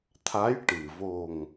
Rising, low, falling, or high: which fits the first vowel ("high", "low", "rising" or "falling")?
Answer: rising